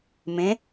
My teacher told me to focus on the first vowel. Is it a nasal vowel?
yes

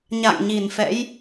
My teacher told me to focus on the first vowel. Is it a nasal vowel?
no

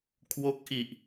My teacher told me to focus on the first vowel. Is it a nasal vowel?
no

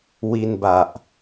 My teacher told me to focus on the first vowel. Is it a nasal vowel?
no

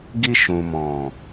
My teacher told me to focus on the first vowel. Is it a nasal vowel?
no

